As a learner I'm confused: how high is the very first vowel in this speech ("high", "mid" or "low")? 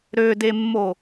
mid